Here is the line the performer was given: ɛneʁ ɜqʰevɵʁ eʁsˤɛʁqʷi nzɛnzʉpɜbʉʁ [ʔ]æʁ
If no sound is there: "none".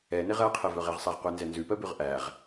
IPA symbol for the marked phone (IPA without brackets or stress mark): ʔ